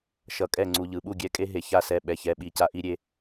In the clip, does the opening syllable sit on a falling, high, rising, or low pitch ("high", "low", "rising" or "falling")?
low